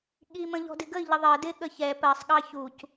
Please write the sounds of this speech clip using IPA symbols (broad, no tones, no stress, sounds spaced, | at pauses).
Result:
ɠ i m ə̃ ʎ ɔ̤ d ɪ ɡ ə i̯ ʎ ə ðˤ ɜ d ɪ ɠ ə ç ɛ p ɜ sˤ ɠ ɑ ç u c